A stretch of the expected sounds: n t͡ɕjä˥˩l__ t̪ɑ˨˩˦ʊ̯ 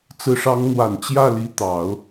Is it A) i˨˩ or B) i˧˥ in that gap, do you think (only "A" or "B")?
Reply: B